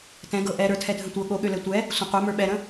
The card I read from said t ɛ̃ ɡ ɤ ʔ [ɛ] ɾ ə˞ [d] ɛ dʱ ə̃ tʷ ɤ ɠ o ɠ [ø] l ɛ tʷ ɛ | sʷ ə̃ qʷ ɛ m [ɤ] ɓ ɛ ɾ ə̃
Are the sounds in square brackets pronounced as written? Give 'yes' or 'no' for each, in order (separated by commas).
yes, no, yes, no